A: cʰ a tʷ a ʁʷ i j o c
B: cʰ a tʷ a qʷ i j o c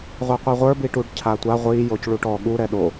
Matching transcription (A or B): A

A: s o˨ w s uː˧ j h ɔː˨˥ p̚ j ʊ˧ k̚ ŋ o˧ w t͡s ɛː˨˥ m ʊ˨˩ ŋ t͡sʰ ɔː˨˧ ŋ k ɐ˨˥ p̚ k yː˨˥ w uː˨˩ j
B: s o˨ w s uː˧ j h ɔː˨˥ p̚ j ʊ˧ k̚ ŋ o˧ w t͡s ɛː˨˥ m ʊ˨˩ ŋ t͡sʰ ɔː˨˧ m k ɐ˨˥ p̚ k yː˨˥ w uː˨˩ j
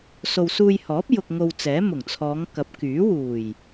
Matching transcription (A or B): A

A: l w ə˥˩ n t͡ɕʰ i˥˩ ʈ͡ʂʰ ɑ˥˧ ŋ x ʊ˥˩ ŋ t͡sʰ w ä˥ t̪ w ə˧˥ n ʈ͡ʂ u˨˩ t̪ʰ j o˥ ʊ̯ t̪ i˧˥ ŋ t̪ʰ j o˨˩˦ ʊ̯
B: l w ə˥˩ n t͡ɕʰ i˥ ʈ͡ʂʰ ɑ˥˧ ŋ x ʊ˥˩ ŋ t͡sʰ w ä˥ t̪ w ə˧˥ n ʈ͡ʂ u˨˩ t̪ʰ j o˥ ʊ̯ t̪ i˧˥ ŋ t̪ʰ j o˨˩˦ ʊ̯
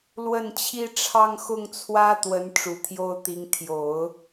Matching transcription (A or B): B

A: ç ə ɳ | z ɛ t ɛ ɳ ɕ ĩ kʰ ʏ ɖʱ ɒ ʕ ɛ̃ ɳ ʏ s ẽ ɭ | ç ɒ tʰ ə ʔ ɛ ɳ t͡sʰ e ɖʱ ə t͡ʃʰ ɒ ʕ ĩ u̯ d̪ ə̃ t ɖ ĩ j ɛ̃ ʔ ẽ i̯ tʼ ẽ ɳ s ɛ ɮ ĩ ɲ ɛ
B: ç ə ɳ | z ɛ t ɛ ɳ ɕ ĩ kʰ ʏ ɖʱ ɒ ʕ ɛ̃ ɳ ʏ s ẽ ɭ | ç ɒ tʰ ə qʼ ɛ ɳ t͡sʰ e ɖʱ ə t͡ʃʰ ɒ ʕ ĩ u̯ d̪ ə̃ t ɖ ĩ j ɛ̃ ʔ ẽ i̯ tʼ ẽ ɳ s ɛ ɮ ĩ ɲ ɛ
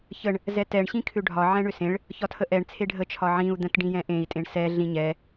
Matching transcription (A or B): A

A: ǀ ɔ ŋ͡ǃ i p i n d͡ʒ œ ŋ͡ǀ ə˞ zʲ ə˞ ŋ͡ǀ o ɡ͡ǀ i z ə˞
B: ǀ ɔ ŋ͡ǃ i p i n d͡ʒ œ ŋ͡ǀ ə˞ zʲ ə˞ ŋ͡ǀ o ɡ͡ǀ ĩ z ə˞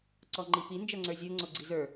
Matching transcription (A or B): A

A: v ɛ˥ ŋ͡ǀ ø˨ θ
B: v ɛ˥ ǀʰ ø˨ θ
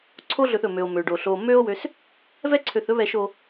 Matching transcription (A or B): B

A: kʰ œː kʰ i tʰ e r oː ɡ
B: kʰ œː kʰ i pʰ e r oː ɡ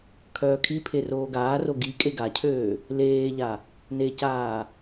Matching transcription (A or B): B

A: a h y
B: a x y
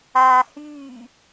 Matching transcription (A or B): A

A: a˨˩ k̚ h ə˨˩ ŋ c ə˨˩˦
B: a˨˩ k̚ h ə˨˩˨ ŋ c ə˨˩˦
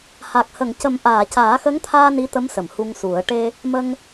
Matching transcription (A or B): B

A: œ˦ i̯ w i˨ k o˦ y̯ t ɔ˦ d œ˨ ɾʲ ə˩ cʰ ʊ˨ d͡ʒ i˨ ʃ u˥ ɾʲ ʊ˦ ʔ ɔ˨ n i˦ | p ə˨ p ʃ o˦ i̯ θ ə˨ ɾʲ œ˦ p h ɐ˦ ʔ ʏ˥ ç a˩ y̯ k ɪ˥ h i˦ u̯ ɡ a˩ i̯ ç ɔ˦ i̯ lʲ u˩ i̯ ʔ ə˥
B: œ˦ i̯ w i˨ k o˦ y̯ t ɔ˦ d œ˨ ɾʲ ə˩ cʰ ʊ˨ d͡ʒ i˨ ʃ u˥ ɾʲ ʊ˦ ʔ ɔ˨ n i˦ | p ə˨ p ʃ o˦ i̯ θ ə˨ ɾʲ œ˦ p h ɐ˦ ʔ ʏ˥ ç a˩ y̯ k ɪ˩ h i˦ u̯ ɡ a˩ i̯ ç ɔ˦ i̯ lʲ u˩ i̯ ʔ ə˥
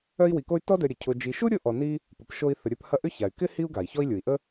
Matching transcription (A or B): A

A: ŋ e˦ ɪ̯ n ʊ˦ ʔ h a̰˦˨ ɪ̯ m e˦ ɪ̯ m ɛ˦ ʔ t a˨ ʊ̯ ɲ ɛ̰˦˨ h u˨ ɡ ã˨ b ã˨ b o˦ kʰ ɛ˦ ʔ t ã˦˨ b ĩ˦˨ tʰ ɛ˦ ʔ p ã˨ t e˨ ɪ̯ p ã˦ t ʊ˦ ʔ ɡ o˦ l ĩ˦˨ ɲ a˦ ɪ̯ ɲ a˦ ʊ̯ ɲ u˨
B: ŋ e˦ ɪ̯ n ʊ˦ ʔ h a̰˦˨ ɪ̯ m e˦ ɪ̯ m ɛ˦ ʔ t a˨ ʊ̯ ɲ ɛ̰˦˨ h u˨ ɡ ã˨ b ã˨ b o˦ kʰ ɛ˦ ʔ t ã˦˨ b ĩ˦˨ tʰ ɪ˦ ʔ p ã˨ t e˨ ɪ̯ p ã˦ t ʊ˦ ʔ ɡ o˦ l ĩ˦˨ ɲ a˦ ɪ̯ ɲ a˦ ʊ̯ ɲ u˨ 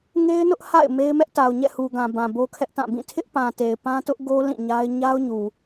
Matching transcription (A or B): B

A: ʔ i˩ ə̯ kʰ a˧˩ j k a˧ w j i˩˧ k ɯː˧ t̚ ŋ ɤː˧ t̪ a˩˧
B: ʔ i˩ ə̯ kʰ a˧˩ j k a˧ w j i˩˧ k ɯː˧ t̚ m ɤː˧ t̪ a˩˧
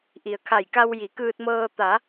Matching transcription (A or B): B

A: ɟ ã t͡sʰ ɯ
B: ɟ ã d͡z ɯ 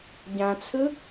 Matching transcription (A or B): A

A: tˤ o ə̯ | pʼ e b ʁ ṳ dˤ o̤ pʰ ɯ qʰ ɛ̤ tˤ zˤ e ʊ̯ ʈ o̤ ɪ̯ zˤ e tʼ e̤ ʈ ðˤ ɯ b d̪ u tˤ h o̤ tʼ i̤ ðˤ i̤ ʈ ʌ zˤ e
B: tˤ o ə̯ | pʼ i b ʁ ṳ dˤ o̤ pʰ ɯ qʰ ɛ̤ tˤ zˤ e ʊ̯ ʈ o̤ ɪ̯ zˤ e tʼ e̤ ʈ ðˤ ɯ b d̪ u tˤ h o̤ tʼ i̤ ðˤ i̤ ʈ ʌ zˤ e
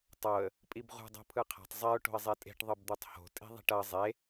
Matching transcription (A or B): B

